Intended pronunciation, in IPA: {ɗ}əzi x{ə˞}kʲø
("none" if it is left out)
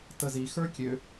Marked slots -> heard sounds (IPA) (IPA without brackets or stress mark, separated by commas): t, ə˞